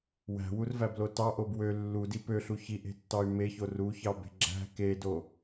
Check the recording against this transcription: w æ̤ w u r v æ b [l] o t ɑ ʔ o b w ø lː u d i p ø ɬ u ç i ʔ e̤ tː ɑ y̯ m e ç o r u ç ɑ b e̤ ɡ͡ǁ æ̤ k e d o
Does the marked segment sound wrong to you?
no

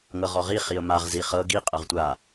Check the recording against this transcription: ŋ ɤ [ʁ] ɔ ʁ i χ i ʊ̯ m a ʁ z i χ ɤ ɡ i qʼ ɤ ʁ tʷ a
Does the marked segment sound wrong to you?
no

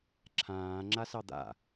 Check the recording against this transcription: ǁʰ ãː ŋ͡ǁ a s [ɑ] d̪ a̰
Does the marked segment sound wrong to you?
no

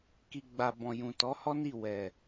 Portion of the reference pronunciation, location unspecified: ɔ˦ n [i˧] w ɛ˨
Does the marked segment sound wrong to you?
yes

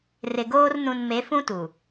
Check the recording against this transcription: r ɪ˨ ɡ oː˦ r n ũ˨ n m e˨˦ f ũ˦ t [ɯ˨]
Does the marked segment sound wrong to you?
yes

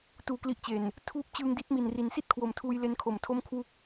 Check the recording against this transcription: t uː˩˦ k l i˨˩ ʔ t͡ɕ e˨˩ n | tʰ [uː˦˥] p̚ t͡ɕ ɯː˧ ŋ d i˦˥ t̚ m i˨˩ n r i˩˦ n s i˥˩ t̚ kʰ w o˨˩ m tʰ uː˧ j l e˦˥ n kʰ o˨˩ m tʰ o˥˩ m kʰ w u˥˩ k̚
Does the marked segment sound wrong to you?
no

